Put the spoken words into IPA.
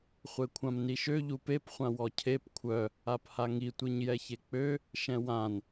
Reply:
χʷ e kʷʰ ã m n i ʃ ø ʎ u p e p χʷ ã w ɔ cʰ e p kʷʰ œ | a p h a ŋ i tʷ i ɲ j ɛ ç e k͡p ø | ʃ ɛ̃ w ã n

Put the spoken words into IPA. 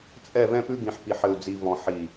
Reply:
t͡sʼ ɛ˦˨ v ɛ̃˦ p ʉ˦ ɡ ĩ˨ ħ p i˨ ħ ɘ˨ u̯ d͡z i˨ v ɔ̃˨ ħ i˨

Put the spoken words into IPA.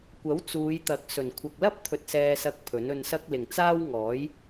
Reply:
kʷ ɐ˨˥ w t͡s uː˨˧ j t̪ ɐ˨˥ k̚ s ɵ˨˩ n kʷʰ ɐ˨ k̚ l ɐ˥ p̚ t̪ʰ ɵ˧ t̚ s ɛː˧ s ɐ˧ k̚ pʰ ɵ˨˥ n ɵ˧ n s ɐ˥ k̚ l ɪ˨ ŋ t͡s aː˥ w ŋ ɔː˨˥ j

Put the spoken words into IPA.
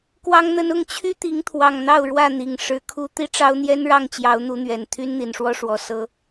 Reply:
k w ɑ˦ ŋ n̪ ə˦ n ʊ˥˨ ŋ t͡ɕʰ y˦ t̪ i˨˦ ŋ t̪ʰ w ɑ˨˩ ŋ n̪ ɑ˥˨ ʊ̯ ɻ w ä˥˨ n̪ i˨˩ ŋ ʂ ɻ̩˨˦ kʰ u˦ t̪ i˦ ʈ͡ʂ ɑ˦ ʊ̯ n̪ j ɛ˦ n ɻ ɑ˥˨ ŋ t͡ɕ j ɑ˨˦ ʊ̯ n̪ u˨˦ n̪ ɥ ɛ˨˩ n t̪ʰ y˦ n n̪ i˨˩ n ʂ w ɔ˦ ʂ w ɔ˨˩ s ɤ˨˦

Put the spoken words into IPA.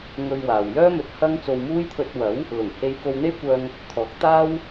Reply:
ŋ ɵ˧ ɥ w aː˨ w j œː˥ m ɵ˧ t̚ h ɐ˥ ŋ t͡s o˧ w m uː˥ j t̪ʰ ɵ˧ t̚ w ɐ˨˥ w | l ʊ˨˩ ŋ h e˧ j k o˧ w n̪ e˥ j kʷ œː˧ ŋ | t̪ʰ ɔː˨˥ k̚ t̪ aː˥ w

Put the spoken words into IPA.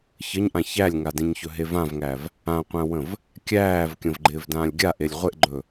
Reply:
ç ə ɲ ʔ ã ç æ lʲ ŋ a d ẽ ɲ ç ɵ ɦ e v ã v ŋ æ v | ã qʷ æ̃ w ə̃ v | kʲ æː v kʲ ə̃ v ɡ͡ǃ ɪː v d ãː lʲ ɡʲ a ʔ e lʲ ʁʷ e ʔ ɡ͡ǃ ɵ

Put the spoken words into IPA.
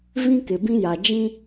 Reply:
v ĩ˦ k ɪ˨ b ĩ˦ j a˨ d͡ʒ ĩ˦

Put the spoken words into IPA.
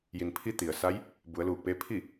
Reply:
j i˩ n pʰ i˧˥ t̪ i˩ ə̯ s a˧˥ j | b u˩˧ ə̯ l uː˧˩ k̚ p eː˧˥ pʰ i˥˨

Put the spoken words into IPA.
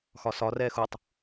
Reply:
x ɒ s ɒ r ɛː x u tˤ

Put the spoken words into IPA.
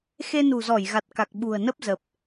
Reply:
x e˧ n ṳ˨˩ z ɔ˧˩ j ɣ a˨˩ t̚ k a˨˩ k̚ ɓ ṳ˨˩ ə̯ n ə˦˥ p̚ z ə˨˩ p̚

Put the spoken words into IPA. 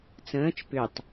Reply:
t͡s ə̃ː t͡ʃ p ʏ tˤ

